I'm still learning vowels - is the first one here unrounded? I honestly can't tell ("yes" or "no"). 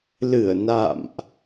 yes